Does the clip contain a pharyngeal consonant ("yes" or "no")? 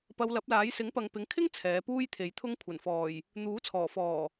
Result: no